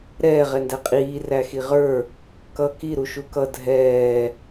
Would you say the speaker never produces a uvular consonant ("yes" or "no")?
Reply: no